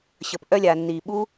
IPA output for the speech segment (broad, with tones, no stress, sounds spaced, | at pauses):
ɕ ə˨ p ʔ œ˧ lʲ aː˨ nː iː˨ ɓ u˦